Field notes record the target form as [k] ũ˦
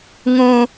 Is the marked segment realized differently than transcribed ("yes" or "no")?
yes